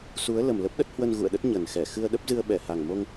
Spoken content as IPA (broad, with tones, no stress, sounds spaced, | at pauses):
s u˨˦ ə̯ l ə˨˩ m l ə˦˥ p̚ ɗ ə˦˥ t̚ h w ə˧ n ɣ ṵ˧˨ ə̯ ɗ ə˦˥ t̚ ɲ ə˨˩ n x ɛ˧˩ x ɨ˧ ə̯ ɗ ə˦˥ p̚ z ɨ˧ ə̯ ɓ ɛ˧˩ h a˨˩ ŋ m o˧ ŋ